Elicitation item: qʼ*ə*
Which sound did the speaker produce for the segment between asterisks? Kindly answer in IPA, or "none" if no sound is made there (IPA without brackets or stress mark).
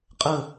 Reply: ə